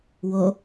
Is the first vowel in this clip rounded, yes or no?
yes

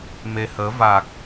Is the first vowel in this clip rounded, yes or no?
no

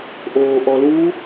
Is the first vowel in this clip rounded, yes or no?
yes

